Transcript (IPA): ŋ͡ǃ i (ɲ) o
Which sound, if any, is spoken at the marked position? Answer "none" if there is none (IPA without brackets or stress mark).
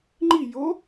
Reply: j